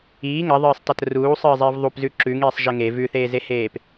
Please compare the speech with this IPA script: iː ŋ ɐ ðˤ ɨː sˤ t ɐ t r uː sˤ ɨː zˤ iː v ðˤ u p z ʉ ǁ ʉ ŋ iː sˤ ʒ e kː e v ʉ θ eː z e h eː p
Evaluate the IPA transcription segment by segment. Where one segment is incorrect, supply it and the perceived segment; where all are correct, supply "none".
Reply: kː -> ŋ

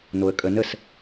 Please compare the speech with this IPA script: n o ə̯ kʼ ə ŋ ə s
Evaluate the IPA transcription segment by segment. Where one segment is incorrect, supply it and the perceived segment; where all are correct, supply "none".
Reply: ŋ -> n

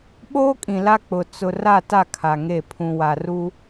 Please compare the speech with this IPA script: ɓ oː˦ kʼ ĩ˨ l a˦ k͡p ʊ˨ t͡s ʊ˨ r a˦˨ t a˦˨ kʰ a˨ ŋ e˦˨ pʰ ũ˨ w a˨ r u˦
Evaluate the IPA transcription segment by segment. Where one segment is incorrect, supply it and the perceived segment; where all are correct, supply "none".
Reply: none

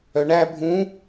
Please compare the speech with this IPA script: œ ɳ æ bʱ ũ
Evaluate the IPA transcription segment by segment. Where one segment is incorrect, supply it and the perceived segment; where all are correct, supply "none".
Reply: none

